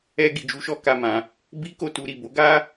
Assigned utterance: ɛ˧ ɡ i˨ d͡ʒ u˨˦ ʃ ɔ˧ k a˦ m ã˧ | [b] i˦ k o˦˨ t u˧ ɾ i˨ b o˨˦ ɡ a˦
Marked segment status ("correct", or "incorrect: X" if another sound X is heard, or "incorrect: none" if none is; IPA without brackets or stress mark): correct